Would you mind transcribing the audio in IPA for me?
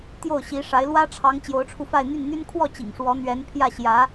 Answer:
t̪jo˥˩ʊ̯ɕi˧˥ʂa˧˥ɪ̯ lwä˥ʈ͡ʂʰɑ˧˥ŋ t͡ɕjo˧˥ʊ̯ʈ͡ʂʰu˧fa˥˧ɪ̯ n̪y˥˩nn̪y˥n kʰwɔ˥˩ t͡ɕḭ˨˩ŋʂwɔ˧˥ n̪ɥɛ˧˥n pʰjä˥˩ ɕjä˧˥

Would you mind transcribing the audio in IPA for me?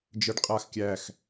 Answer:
d͡ʒəɖ qʼax kʲæx

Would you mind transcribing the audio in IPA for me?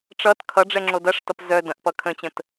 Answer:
ʈ͡ʂʌt kʰʌɖ͡ʐɛ ŋ͡ǁodɐʂtʌp zœ dɐ̃ʔpʌ kʰə̃t͡ɕə̃t

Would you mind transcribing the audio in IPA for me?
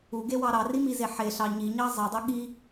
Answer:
uɡewɑ ɾɑrimize ħeɬɑ ɲiɲɑ zˤidˤu ɠi

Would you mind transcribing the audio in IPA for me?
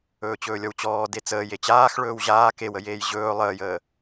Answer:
ɵːt͡ɕɵːlʲɔwt͡ɕɔː det͡səːj et͡ɕaːx ɭɵːwʑaː kewəjeːj ʑɵː lˠəːjəː

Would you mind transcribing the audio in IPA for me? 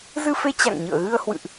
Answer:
zɨ˧fe˧ t͡ɕa̰˧˨ŋɲɨ̰˧˨ə̯ɣɨ˧ə̯hwɨ̰˧˨ʔ

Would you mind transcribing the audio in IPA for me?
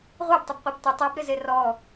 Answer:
ʁʷabtˤɪbqʷeb tʷɪ tˤɛbɾɪze rɔ

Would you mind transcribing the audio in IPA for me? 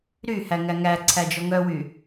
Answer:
ɾyhæ ŋæŋæǀʰæ d͡ʒɔŋœwy

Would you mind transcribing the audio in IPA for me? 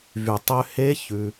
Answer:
vy˩ tˤø˧he˧˥ çʉ˩

